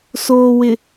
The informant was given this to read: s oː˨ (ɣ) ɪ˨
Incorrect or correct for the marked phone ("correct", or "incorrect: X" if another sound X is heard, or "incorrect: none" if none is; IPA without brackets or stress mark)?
incorrect: w